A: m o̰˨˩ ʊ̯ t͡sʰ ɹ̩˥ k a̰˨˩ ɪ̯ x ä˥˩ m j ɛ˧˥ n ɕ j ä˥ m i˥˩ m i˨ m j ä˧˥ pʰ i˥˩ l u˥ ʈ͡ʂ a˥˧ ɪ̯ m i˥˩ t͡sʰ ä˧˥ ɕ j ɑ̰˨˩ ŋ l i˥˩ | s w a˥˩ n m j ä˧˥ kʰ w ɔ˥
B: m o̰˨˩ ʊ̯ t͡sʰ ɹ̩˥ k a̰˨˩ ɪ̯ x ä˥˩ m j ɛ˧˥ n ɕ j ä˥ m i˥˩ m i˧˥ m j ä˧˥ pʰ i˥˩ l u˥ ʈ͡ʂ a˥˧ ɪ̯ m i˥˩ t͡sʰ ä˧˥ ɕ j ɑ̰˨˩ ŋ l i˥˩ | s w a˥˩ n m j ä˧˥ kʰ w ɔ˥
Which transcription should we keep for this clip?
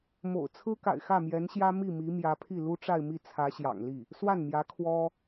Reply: B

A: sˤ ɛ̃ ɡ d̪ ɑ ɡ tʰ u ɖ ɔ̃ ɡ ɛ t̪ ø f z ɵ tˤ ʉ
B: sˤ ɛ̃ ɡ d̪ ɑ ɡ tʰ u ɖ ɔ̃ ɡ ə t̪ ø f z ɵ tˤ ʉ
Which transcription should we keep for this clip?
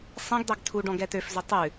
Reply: A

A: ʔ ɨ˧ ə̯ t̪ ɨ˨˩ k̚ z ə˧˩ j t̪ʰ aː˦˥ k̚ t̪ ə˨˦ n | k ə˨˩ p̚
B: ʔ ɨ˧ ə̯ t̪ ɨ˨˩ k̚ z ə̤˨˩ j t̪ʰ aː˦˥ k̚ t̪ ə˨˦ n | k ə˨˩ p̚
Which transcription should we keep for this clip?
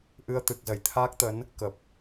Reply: A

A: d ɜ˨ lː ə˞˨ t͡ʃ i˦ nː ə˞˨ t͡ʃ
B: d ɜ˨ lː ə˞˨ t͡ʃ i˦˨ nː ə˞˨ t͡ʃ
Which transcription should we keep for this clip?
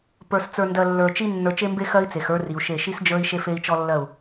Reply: A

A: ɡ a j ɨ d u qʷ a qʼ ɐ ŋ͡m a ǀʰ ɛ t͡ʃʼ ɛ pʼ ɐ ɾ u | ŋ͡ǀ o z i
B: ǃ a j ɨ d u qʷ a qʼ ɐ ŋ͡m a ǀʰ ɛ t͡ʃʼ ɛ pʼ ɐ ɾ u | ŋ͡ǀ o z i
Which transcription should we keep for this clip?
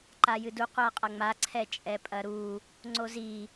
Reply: B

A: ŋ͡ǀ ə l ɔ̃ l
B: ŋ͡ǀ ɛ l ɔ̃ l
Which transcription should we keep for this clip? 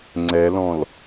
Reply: B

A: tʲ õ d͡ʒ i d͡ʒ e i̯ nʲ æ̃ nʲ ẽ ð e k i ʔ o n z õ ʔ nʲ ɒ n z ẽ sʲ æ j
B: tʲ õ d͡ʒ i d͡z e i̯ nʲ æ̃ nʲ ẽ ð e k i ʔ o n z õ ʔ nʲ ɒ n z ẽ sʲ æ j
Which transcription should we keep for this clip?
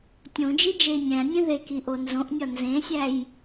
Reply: A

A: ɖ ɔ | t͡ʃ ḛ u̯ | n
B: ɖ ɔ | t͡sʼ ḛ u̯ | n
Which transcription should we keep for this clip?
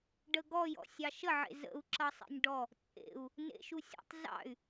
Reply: B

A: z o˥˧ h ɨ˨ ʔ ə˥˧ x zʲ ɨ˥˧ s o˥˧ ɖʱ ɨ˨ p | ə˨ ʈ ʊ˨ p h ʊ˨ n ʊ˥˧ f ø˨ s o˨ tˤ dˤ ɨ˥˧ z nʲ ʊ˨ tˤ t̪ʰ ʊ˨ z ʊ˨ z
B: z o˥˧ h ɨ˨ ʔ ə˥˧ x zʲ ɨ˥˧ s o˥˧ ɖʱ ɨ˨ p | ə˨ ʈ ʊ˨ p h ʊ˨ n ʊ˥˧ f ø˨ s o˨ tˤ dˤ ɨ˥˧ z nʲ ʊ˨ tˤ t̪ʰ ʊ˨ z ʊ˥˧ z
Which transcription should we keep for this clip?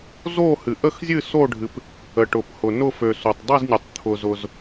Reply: A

